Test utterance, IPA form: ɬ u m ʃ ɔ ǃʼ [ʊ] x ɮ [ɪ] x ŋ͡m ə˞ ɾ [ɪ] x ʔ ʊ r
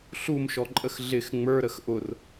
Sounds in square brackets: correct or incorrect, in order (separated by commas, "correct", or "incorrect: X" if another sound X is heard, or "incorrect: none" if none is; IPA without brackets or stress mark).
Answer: incorrect: ə, correct, incorrect: ə